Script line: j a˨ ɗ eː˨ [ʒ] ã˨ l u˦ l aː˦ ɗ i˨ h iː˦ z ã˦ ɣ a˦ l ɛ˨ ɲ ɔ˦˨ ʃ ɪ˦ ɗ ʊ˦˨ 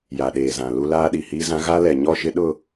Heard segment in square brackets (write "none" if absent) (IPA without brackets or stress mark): z